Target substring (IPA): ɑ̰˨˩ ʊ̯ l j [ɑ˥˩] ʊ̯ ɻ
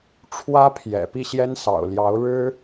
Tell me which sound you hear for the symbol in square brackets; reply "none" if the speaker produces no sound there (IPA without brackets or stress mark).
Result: ɑ˧˥